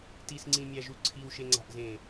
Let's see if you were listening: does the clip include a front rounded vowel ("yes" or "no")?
no